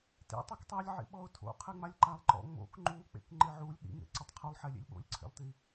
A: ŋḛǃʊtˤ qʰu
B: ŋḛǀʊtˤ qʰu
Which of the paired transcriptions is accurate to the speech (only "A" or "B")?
B